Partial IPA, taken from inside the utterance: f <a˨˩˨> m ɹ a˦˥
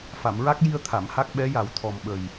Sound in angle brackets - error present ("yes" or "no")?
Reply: no